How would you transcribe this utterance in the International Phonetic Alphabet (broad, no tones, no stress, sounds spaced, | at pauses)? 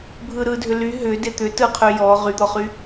bʱ ɯ ɾ ɯ dʱ ʏ l y ɦ ʏ d e t̪ ʏ t ɯ qʰ y j ɔ ʁ y d̪ ɔ χ y